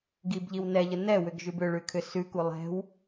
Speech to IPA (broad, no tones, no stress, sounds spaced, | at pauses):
ɡ i b ʎ i w n ɛ ʎ ə n ɛ w ʏ ɡ ʒ ʉ b ʏ ɭ ʉ kʰ ʏ s ʉ k u lˠ ɛ̤ w